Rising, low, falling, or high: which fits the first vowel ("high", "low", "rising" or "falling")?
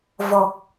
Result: low